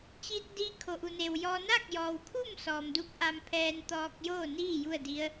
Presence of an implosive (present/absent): absent